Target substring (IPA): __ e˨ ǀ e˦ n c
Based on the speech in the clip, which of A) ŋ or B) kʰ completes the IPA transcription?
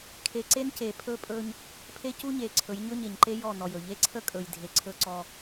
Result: B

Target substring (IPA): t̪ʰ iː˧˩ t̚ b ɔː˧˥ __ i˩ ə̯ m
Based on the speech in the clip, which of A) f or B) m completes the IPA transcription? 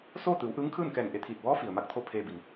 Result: A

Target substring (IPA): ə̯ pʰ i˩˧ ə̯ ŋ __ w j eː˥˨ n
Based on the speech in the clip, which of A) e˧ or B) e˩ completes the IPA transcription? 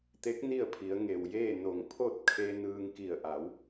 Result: B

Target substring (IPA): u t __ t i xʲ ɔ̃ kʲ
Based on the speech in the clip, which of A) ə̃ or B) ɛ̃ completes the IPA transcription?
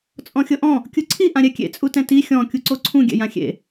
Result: B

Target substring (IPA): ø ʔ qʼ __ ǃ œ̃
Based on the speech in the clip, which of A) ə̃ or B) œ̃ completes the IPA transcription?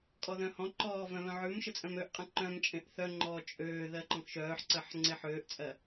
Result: A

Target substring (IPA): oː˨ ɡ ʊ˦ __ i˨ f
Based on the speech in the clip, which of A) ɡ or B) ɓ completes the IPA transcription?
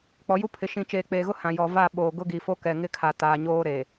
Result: A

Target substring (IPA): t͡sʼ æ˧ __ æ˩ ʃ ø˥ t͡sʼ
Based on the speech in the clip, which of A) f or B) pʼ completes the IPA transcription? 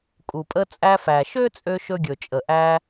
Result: A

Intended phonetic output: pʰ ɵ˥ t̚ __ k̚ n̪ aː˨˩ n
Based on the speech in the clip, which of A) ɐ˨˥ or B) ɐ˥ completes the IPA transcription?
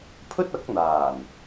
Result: A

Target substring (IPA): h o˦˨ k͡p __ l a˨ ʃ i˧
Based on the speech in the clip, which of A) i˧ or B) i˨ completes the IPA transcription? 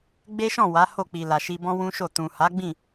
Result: B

